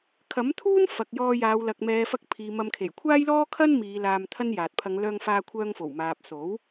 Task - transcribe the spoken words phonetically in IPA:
kʰ ɐ˨˥ m t̪ʰ uː˥ n f ɐ˨ k̚ j ɔː˧ j aː˨˧ w l ɐ˨ k̚ m ɛː˨˧ f ɐ˧ k̚ pʰ iː˨ m ɐ˧ m kʰ e˨˩ j kʷʰ aː˥ j l ɔː˥ kʰ ɐ˥ n m iː˨˧ l aː˧ m t̪ʰ ɐ˥ n j aː˨ t̚ pʰ ɐ˨˧ ŋ l œː˧ ŋ f aː˧ kʷʰ œː˧ ŋ f o˨˩ w m aː˨ p̚ s o˨˥ w

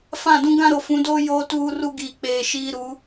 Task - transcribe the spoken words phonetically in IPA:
f ã˦˨ d ũ˦ ɡ ã˦ ɾ o˨ f ũ˨˦ d oː˦ j oː˦ t uː˦ r u˦ ɡ iː˨ k͡p eː˨ ʃ iː˦ ɾ u˨˦

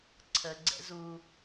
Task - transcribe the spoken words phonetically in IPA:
ǀʰ ə ɡ͡ǀ ɛ̰ z u

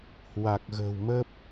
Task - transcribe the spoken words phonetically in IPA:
h w a˨˩ k̚ ɣ ə̤ː˨˩ w m ə˦˥ p̚

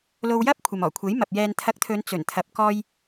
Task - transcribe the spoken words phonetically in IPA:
l o˧ w j ɐ˥ p̚ kʷʰ ɐ˨ m ɔː˨˩ kʷʰ e˨˥ j m ɐ˨ p̚ j ɛː˨ n t̪ʰ ɐ˨˥ k̚ t̪ʰ ɵ˨˧ n t͡s ɵ˨˩ n t̪ʰ ɐ˨ p̚ k ɔː˧ j

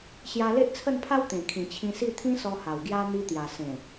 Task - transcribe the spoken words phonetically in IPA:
ɕ j a˧ l e˦ ʔ t͡sʰ ə˥˧ n pʰ a˦ w t̪ ẽ˨˩ kʰ ĩ˨˩ t͡ɕʰ ĩ˧ s i˥˧ t̪ʰ ĩ˦ s ɔ˧ h a˨˩ w ɡ j a˦ n̪ i˧ t̪ j a˨˩ s ẽ˨˩

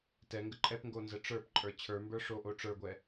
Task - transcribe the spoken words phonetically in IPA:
t ɛ ŋ ɡ ə ǃʼ ɛ p ŋ ɡ o n z ə ʈ͡ʂ ə˞ p ǃʼ ə˞ t͡ɕʰ ə˞ m b ə˞ ʂ o ʔ o ʈ͡ʂ ə˞ ɡʷ ɛ

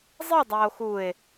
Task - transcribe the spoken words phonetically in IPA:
zˤ i dˤ æ o̯ x u e̯

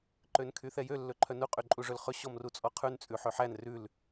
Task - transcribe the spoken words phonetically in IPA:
ǃ ø n kʰ y θ ɛ j ø lː ɵ ǃʰ œ n u qʼ y ǃʼ u ʐ ɵ l χ ɵ ɕ ɔ m r u t͡sʼ ɔ qʰ ʉ n t͡sʼ ʉ ħ ø ħ æ n r ʉ l

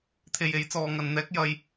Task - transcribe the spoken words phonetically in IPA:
t̪ʰ e˧ j e˨˥ j t͡s ɔː˨˧ ŋ ɐ˨ n n̪ ɛː˥ k̚ j ɐ˧ j

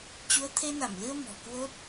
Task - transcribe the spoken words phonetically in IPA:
t͡ɕ u˨˦ ə̯ t̪ʰ e˧ n a˧˩ m l ɨ˧ ə̯ m ɔ̤˨˩ k w o˦˥ t̚

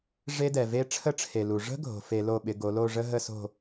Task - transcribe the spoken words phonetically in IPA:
ʐ e˦˥ d ɛ˩ v e˦˥ ʈ͡ʂʰ ə˦˥ ʈ͡ʂʰ e˩ l u˩ ʐ ə̤˦˥ ɡʱ o̤˩ f e˧˩˧ l o˧˩ ɓ ɪ˩˧ ɡ o˩˧ l o˥˨ ʐ ə˦˥ ɦ ə˥˨ s o̤˥˨

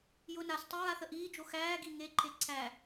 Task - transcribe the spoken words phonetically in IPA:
j ʊ n a s tˤ ə ɹ a θ ə ʔ iː d͡ʒ o x æː ɡ i ŋ e ǃʰ e ǀʰ æ

